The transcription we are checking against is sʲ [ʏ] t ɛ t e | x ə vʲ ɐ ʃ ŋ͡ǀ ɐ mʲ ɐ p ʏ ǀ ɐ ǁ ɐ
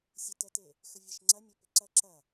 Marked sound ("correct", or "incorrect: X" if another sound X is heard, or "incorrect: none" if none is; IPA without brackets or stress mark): incorrect: ə